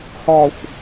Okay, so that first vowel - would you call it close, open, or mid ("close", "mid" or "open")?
open